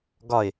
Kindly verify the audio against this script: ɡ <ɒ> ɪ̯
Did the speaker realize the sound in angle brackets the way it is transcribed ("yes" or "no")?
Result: yes